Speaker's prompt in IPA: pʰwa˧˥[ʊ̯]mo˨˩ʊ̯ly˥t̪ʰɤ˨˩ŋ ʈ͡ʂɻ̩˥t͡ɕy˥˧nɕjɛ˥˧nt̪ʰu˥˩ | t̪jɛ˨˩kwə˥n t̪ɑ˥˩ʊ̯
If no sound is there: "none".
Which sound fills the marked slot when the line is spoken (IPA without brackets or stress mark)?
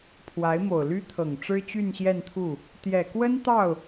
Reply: ɪ̯